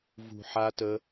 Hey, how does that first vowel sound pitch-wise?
low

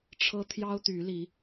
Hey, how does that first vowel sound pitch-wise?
high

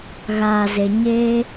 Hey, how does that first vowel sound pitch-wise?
low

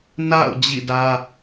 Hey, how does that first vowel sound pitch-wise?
falling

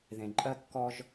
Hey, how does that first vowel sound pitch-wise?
low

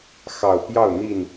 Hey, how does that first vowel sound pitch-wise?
low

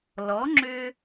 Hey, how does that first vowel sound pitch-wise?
rising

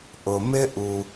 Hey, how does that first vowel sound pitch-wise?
low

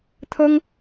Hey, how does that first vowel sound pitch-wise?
high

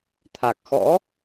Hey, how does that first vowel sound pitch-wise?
low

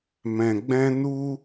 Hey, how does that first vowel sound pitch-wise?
low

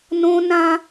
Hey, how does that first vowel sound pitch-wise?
high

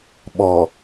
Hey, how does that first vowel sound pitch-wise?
low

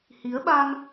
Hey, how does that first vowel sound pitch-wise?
rising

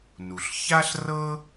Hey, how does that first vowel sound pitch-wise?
low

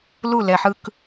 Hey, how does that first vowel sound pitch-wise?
falling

